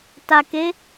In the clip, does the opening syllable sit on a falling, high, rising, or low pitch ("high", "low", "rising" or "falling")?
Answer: low